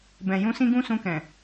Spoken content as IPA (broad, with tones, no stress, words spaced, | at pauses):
bɛ̃˨ jũ˧ sĩ˦ɡũ˦ sũ˧kɛ̃˨